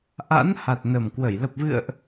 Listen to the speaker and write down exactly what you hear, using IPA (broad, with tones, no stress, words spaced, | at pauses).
ʔa̰˧˥n ha˨˩t̚nə˨˩mkwə˧˩j lə˨˩p̚vɨ̰˧˨ə̯ʔ